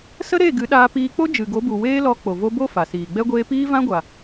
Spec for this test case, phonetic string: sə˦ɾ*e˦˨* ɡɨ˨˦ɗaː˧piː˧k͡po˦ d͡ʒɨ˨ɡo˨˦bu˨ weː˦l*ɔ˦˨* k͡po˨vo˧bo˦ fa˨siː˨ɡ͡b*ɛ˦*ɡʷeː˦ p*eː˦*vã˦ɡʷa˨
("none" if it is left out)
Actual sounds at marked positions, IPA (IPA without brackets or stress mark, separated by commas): e˦˨, ɔ˧, ɛ˦, iː˦